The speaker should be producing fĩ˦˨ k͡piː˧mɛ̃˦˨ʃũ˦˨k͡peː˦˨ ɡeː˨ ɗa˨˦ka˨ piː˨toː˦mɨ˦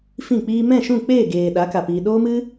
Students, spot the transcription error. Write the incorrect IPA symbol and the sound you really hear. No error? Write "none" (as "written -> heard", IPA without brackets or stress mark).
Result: t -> ɗ